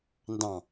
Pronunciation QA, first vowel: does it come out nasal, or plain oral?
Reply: nasal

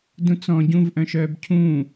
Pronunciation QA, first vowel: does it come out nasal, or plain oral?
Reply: nasal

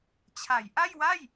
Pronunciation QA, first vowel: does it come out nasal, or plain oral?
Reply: oral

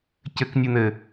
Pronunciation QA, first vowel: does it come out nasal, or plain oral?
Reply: oral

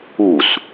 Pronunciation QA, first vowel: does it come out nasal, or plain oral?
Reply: oral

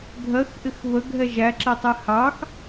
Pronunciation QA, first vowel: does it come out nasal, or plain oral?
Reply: oral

